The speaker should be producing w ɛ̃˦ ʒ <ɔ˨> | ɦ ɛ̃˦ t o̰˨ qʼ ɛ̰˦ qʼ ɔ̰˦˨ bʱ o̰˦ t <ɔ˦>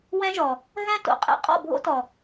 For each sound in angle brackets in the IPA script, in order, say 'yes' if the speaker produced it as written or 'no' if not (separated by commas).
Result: yes, no